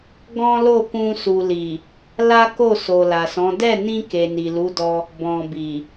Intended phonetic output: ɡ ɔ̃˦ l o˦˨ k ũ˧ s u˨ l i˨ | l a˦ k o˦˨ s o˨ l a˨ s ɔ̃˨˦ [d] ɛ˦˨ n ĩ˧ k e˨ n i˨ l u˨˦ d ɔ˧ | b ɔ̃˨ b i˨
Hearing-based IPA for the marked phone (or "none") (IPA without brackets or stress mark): d